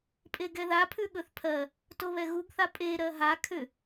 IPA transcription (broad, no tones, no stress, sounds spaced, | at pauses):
pʼ e ɡ ɛ ð a pʰ ʉ ɠ ɵ θ pʰ ɜ | t o β ɛ ɣ u ɡ θ a pʼ e ɾ ɜ ɦ a kʰ ʏ